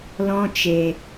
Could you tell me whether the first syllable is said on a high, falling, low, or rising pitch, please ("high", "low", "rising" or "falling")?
high